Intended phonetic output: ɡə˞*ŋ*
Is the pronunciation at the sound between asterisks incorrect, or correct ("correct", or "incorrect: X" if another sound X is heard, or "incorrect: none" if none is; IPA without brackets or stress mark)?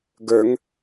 correct